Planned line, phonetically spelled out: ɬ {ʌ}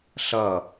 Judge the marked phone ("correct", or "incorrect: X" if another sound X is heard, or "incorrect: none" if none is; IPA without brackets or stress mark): correct